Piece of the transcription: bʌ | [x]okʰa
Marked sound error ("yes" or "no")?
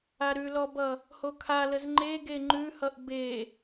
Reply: yes